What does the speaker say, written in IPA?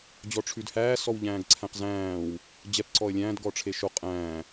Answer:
d͡ʑ ɔ ʈ͡ʂʰ ʉ d h æː s ɔ w ʎ æ̃ː ɡ ǀʰ æ̃ q z æ̃ː w | d͡ʑ ɛ p ǀ ɔ ə̯ lʲ æ̃ː d ɡ ɔ ʈ͡ʂʰ e ʃ o qʼ æ̃ː

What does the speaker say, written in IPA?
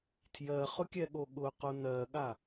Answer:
tʰ j ɜ χ ʊ kʲ ɛ ɠ o ɠ ʊ q o n ɜ ɠ a

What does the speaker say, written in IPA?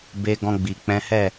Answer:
b e˧ ɡ ɔ̃˧ ɡ͡b i˨ k͡p ɛ̃˨˦ h ɛ˦˨

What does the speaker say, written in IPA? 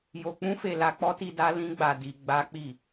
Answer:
j o˧ k͡p ũ˦ f e˧ l a˧ k͡p ɔ˦ t i˧ d a˦ l ĩ˦ ɡ͡b a˧ d i˧ ɡ͡b a˦ k͡p i˦˨

